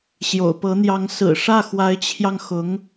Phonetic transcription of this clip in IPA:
ɕ j o̰˨˩ ʊ̯ p ɤ˧˥ n̪ j ɑ˧˥ ŋ s ɹ̩˨˩ ʂ ä˥˩ x w a˧˥ ɪ̯ t͡ɕʰ j ɑ˧ ŋ x ʊ˧˥ ŋ

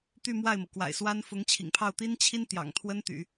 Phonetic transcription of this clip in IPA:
t̪ y˥˧ m w a˥˩ ɪ̯ m ɤ˩ k w a̰˨˩ ɪ̯ s w a˥ n f ʊ˧˥ ŋ t͡ɕʰ ḭ˨˩ ŋ pʰ ɑ˥˩ ʊ̯ t̪ i˥ n t͡ɕʰ i˥ n t̪ j ɑ̰˨˩ ŋ t̪ʰ w ə˥ n t̪ y̰˨˩˦

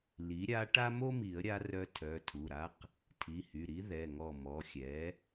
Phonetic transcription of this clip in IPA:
l i˩˥ ɾʲ a˧˥ ʈ a˥ m o˥ m i˨˩˦ ə̯ ɾʲ a˧˥ r œ˧˥ tʰ œ˩˧˩ tʰ u˩˧˩ ɾ a˧˥ q | tʰ i˩˧˩ h y˩˧˩ ɾ i˧˥ ð ɛ˩˧˩ ŋ ɔ˧˩ m ɔ˩˧˩ xʲ ɛ˩˥

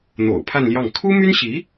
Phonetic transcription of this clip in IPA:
n̪ o̰˨˩ ʊ̯ pʰ a˥˧ n l j ɑ˥˩ ŋ kʰ u˥ m y˥ n ɕ i˧˥

